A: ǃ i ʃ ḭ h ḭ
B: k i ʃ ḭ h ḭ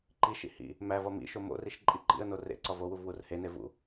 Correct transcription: A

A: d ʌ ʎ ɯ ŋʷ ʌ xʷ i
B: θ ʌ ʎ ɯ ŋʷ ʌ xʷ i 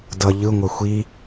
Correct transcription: A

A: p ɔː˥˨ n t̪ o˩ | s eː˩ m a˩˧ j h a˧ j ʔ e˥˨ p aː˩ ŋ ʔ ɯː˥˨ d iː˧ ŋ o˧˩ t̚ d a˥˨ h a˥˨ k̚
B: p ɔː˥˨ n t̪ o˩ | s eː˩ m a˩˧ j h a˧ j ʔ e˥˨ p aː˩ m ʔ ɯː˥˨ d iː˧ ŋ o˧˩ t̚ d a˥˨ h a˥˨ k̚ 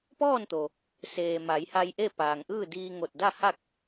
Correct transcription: A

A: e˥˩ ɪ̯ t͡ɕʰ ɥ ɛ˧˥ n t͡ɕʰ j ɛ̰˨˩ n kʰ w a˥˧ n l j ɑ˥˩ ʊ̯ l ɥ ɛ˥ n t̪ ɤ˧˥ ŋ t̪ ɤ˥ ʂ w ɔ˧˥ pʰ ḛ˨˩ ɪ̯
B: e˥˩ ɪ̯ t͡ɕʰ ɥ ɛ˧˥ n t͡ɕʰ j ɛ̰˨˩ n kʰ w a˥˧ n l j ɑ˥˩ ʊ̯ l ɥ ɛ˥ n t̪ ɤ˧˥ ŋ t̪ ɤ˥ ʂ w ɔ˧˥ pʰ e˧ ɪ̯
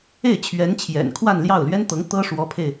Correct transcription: B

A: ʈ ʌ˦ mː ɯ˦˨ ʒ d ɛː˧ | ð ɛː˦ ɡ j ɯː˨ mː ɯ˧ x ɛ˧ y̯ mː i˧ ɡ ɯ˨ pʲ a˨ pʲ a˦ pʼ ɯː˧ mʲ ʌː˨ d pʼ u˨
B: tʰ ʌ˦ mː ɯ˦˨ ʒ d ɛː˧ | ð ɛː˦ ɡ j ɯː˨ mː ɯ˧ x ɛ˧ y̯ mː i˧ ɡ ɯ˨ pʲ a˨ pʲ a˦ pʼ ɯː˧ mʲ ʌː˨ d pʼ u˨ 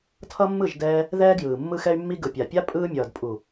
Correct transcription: B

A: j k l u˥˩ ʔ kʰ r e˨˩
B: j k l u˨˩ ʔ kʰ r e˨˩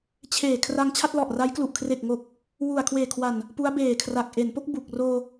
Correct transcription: B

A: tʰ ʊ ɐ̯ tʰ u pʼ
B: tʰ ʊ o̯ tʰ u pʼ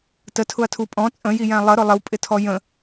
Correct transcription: A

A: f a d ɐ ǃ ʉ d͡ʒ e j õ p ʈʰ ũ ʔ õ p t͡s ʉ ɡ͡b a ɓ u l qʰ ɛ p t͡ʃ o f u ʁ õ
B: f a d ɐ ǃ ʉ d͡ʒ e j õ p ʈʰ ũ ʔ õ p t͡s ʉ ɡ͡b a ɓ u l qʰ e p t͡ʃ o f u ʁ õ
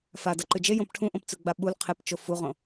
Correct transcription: B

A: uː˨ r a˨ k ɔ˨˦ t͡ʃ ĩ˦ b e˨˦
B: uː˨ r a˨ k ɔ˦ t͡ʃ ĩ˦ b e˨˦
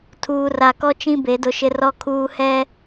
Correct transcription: B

